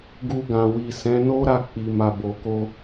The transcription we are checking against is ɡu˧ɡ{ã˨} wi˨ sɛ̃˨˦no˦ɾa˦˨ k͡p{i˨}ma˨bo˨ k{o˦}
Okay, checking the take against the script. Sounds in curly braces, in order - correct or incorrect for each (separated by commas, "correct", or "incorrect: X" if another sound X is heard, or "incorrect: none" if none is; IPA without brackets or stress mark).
correct, correct, incorrect: o˧